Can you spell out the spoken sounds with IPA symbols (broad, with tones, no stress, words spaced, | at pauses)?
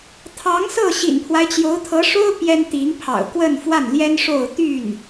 t̪ʰɑ˧˥ŋsɤ˥˩ ɕḭ˨˩npʰwa˦ɪ̯t͡ɕjo˧˥ʊ̯t̪ʰɤ˧˥ ʂo˥ʊ̯ pjɛ˥nt̪i˧˥ŋpʰɑ̰˨˩ʊ̯ kwə˥˧nfwa˥˩nljɛ˥n ʂo˥˧ʊ̯ t̪y˥˩n